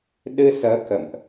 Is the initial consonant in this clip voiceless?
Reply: no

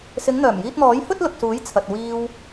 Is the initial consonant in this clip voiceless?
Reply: yes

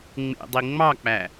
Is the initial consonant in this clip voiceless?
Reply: no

